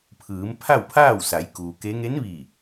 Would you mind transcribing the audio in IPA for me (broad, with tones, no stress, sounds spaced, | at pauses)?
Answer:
pʰ ɯː˩˧ m pʰ a˥˨ w pʰ aː˥˨ w s a˩˧ j k uː˩ k e˧˥ ŋ e˧˥ n ʋ iː˧˩